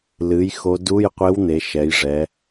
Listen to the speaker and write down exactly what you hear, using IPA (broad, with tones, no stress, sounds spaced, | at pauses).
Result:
l ɨ˩˥ j x o˧˥ d u˧˥˧ j qʷ e˧˥ w n̪ e˩˥ ʃ ɛ˩˥ j ʐ ɛ˩˥